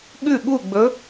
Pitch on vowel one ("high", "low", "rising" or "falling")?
falling